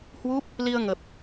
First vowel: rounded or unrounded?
rounded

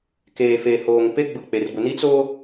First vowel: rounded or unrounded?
unrounded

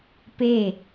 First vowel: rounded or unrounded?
unrounded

